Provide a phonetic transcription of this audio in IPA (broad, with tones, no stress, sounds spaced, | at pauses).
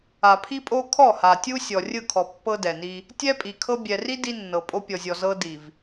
a˨ pʰ i˦ pʼ o˦ kʰ ɔ˦˨ h a˨ tʲ u˦ sʲ ɔ˨ rʲ ɯ˦˨ kʰ ɔ˨ pː ɤ˦ d ɛ˨ n i˦ | tʲ ɛ˦ pʼ i˨ kʰ ɤ˦ bʲ ɛ˨ r i˦ d i˦ nː ɤ˨ pʼ o˦ pʲ ɔ˨ zʲ ɔ˨ z ɤ˦ d i˨ v